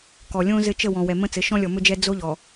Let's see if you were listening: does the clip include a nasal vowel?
yes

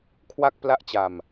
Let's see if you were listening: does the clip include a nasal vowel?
no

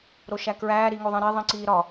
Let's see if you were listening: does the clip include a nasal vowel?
yes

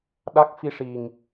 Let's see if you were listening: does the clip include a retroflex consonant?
yes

